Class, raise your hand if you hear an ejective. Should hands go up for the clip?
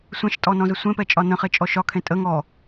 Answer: yes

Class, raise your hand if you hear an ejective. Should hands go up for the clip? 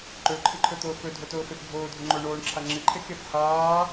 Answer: no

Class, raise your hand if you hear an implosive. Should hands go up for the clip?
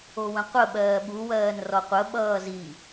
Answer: yes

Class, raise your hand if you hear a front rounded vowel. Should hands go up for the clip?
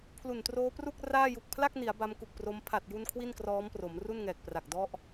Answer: no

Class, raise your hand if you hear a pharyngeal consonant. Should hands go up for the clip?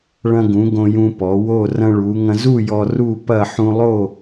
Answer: yes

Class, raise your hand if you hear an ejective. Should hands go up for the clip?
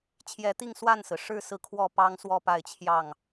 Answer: no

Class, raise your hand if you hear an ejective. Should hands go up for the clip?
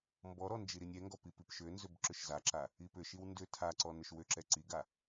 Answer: no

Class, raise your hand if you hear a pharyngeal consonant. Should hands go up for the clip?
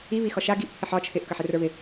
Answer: yes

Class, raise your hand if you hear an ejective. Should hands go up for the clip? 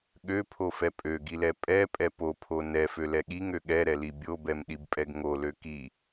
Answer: yes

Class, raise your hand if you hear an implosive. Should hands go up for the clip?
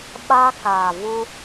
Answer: yes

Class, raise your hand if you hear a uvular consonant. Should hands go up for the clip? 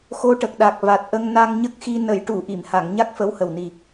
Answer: no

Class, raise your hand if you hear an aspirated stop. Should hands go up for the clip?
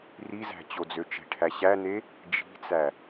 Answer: yes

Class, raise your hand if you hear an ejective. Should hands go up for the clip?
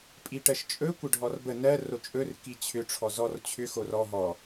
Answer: yes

